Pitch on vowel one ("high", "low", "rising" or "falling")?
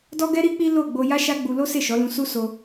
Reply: high